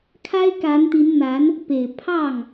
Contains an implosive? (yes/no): no